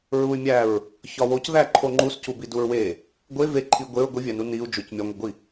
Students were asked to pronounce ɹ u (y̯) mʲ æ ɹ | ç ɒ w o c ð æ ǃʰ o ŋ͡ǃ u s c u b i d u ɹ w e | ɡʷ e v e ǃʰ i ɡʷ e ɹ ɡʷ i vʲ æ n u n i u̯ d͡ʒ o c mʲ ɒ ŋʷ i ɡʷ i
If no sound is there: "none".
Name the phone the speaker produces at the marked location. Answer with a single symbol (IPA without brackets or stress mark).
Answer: y̯